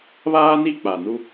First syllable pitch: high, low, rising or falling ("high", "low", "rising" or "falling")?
high